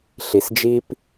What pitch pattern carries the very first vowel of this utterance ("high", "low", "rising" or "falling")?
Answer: low